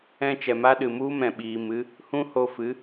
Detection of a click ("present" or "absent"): absent